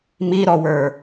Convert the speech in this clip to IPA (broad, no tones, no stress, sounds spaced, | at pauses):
m i ɾ ɔ w ə˞